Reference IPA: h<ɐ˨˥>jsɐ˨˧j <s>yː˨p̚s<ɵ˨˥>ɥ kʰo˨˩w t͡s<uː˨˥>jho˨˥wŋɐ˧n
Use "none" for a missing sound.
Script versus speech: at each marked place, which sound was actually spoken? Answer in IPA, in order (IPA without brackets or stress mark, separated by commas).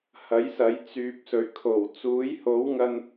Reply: ɐ˨˥, t͡s, ɵ˨˩, uː˨˥